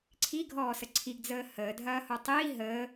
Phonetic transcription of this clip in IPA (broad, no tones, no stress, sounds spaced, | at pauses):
ǀʰ i ɡʱ ɔː s ə ǀʰ i ɡ d͡z əː h əː dʱ ɐː h o tˤ iː ɦ əː